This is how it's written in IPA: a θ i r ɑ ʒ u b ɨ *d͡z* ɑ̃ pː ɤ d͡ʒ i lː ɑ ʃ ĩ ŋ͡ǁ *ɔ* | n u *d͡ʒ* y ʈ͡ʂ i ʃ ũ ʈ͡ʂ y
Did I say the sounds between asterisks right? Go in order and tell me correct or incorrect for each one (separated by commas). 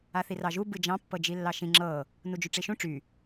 incorrect, incorrect, correct